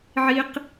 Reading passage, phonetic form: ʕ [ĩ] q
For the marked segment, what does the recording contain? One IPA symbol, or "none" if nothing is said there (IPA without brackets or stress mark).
i